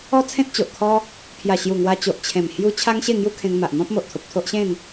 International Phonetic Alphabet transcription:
ɔ˦ t͡sʰ ẽ˦ t̚ t͡ɕ o˨ ʔ kʰ ɔ˦ | pʰ j a˨˩ ɕ j u˨˩ ŋ w a˧ t͡ɕ o˨ ʔ t͡ɕʰ ẽ˨˩ m h j u˧ t͡ɕʰ a˦ ŋ ɕ e˥˧ ŋ j u˦ kʰ ẽ˧ ŋ m a˨ ʔ n̪ ɔ̃˦ p̚ m o˨ ʔ t̪ʰ o˨ p̚ t̪ʰ o˦ ʔ ɕ ẽ˥˧ n

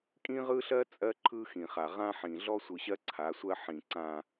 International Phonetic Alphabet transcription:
kʼ ĩ˦ ʁ ɯ˦ ɬ ɜ˦ t͡sʼ ɜ˦ ǃʰ ɯ˦ x ĩ˨ χ a˨ ʁ ã˦ ħ ĩ˨ ɮ ɔ˦ sʷ ɯ˨ ɕ ɜ˦ ǀʰ a˨˦ sʷ ɜ˦ ħ ĩ˨ ǀ ã˨

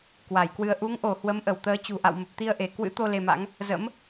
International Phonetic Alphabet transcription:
k w a˧˩ j k w ɨ˧ ə̯ ʔ u˨˦ ŋ ʔ o˧˩ h w ə˨˦ m ʔ ə˧˩ w t̪ əː˨˦ t͡ɕ ṳ˨˩ ʔ a̰˧˨ w m ə˨˩ p̚ t̪ i˧ ə̯ ʔ e˧˩ k w ɨ̰˧˥ t̪ o˧ l e˧ m a̰˧˥ ŋ | z ə̰˧˥ m

